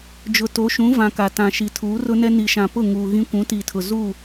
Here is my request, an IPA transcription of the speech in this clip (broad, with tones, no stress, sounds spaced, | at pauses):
d͡ʒ ʊ˨ t o˨˦ ʃ ũ˨˦ v ã˨ k a˨ t ã˨ ʃ i˨ tʰ uː˨˦ r ʊ˦ n ɛ˦ n i˨ ʃ ã˨ p ʊ˦˨ ŋ uː˨ ɣ ĩ˦ kʷ ũ˨˦ t iː˨ tʰ ʊ˨ z uː˦˨